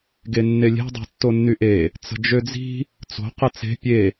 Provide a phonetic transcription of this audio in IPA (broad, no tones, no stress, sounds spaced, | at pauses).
ɡ e nː e lʲ e̤ dˤ e̤ tː o nː y ʔ e | t͡s ə̤ d͡ʒ ø d͡z i̤ | t͡s o̤ q ə t͡s e̤ pʲ e